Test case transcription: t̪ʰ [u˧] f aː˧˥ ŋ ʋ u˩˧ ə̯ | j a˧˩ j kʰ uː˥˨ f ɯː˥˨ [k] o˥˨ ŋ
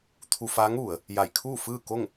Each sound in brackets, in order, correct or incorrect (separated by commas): correct, correct